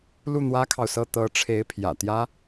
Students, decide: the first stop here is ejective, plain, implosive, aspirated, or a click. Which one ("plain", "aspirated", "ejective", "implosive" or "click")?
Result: aspirated